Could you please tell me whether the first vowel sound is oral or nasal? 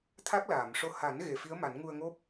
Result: oral